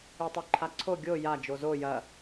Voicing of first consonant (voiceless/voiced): voiceless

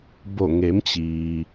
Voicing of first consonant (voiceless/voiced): voiced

